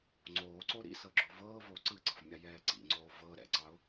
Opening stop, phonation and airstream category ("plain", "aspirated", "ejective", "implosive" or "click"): click